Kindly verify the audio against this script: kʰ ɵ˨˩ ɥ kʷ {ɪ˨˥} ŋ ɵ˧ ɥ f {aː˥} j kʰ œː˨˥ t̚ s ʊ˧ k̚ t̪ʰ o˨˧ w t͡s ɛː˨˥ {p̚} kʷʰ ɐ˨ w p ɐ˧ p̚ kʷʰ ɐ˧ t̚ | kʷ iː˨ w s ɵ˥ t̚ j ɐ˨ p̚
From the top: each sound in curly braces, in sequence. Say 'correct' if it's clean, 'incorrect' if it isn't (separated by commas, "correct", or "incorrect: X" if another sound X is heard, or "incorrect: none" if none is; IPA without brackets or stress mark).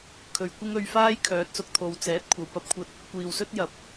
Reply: incorrect: ɪ˥, correct, incorrect: t̚